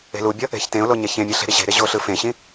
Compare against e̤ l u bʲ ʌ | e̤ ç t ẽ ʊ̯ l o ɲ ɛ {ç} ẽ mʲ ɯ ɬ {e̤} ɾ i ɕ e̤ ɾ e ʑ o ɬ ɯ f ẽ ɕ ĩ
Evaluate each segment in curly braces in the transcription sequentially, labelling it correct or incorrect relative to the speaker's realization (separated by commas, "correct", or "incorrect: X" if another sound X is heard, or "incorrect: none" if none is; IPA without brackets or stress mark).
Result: correct, correct